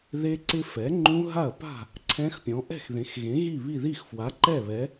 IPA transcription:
ðe˦˥ǀɪ˦˥fɛ˩˥ŋ͡ǃũ˦˥ ɦa˥˩ɐ̯ pa̤˥˩ | ǀʰɛ̃˦˥xpʲɔ̃˩˥ ʔɛ̤˥˩xðẽ˩˥x ɣẽ˩˥ɣi˥˩βi˥˩ ði˥˩xfwa˩˥ǃɛ˥˩ βɛ˩˥

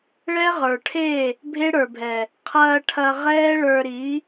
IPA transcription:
ɭɛ˦ʁə˞˨ʈʰe˦˨ | bʱe˦ɽə˞˨bʱɛ˨ | qʰɐː˧ ʈʰɐ˧ ʁɛː˦ ɭə˞˧ɾi˨˦

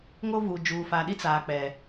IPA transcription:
ŋo˦vu˨ d͡ʒuː˨fa˨ɗi˦ t͡saː˨k͡pɛ˨

